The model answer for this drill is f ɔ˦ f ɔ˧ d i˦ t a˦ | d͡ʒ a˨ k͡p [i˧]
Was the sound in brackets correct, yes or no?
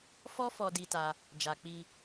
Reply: yes